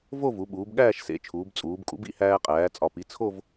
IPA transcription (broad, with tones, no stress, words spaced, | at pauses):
vo˥˧vu˩˧ ɓuː˩˧bɠæː˥˧ʃ sḛ˩˧t͡ʃʰuː˩˧bt͡sʼuː˩˧bkʼṵ˩˥b ḭ˧hæː˧ qʼæː˩˧t͡sʼɒ˨˩ pi˩˥t͡sʰo˥˧v